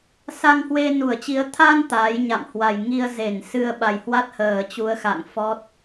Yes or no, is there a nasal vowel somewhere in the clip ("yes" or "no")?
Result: no